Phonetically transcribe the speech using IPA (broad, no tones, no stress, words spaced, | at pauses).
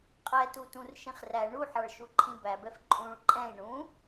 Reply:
qʼɛtutũr ʃĩχræ ɳuħɑɭ ʃuǃʰĩbæbɛf ǃʼũɭ ǃʼɛ̃i̯ ɳũ